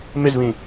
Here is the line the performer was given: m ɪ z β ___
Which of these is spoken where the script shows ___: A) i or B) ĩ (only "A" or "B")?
B